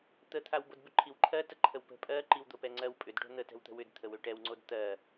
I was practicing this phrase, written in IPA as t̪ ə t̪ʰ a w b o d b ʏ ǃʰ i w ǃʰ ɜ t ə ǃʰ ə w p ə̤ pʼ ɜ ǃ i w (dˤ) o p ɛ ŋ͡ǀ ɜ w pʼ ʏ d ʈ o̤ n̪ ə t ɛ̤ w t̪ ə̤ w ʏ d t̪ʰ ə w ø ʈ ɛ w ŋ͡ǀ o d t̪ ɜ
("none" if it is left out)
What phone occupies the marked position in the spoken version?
d̪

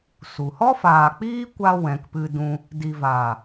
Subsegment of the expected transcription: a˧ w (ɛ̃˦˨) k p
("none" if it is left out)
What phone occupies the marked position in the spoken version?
ɛ̃˨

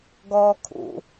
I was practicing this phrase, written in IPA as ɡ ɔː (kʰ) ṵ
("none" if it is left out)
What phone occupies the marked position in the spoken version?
kʰ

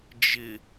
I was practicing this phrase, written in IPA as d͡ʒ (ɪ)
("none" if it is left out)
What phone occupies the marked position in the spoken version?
ɪ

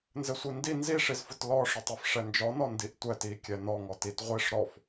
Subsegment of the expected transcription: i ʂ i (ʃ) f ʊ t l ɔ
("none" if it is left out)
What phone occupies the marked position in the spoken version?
z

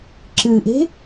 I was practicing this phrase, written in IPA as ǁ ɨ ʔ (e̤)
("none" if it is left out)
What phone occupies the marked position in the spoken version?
e̤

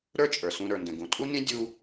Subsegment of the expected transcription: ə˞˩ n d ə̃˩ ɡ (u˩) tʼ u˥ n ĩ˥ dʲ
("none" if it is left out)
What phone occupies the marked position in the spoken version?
ũ˩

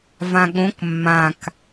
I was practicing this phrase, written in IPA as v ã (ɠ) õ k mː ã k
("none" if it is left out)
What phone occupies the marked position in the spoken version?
ɠ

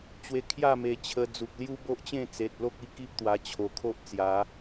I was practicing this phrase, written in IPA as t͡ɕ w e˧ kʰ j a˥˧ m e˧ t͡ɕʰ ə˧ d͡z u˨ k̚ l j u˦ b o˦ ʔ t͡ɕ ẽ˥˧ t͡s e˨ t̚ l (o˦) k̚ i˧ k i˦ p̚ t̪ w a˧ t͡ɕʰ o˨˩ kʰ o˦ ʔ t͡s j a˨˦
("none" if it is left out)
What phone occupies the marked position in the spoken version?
o˦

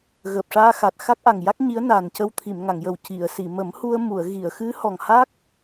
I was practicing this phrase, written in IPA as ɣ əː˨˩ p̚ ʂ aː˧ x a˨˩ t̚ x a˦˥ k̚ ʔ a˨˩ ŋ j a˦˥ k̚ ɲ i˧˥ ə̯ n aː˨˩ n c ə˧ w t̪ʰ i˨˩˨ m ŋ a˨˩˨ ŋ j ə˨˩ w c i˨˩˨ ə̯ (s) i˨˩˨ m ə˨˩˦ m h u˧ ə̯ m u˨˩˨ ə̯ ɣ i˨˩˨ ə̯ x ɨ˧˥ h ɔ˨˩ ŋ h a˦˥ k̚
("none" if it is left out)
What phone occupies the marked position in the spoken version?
s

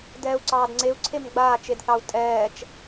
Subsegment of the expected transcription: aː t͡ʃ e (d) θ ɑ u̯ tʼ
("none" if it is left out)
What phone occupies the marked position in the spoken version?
d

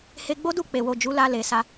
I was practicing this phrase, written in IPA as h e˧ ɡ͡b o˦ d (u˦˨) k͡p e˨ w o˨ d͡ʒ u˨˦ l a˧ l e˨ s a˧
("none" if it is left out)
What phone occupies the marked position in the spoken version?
u˦˨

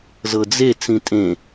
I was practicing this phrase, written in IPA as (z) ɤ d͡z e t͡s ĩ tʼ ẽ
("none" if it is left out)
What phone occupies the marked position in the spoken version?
z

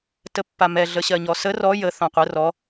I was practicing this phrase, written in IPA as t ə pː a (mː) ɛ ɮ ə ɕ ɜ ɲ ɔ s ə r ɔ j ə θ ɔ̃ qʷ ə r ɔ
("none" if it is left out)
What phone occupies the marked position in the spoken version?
m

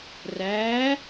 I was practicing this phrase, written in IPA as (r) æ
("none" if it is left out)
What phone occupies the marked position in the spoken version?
r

